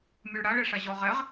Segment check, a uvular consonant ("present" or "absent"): present